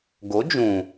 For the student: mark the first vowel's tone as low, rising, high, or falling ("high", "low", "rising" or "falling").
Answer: rising